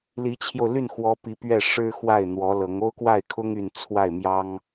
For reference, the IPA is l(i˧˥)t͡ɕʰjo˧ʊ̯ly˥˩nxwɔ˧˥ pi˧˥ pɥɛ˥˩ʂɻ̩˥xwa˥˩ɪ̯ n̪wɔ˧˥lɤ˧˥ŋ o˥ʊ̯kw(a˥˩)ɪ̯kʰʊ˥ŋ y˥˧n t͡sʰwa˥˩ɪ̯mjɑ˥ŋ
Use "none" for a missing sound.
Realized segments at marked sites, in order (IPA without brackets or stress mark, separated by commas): i˧˥, a˥˩